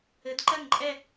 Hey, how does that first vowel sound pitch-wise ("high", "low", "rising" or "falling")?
rising